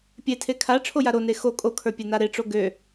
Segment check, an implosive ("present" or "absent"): absent